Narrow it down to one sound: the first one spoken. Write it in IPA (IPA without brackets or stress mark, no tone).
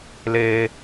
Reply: l